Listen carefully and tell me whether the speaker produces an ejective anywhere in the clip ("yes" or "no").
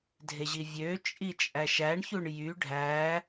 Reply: yes